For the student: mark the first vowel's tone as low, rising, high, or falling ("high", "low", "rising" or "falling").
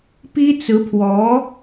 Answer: high